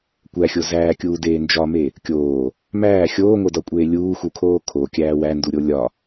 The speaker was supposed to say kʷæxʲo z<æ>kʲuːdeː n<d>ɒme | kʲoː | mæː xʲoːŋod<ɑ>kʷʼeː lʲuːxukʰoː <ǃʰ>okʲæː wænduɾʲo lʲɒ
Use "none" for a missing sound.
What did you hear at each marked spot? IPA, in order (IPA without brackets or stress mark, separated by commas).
æː, d͡ʒ, ɒ, kʰ